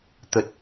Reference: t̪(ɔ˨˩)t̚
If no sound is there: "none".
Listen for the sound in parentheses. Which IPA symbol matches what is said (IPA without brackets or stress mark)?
ə˨˩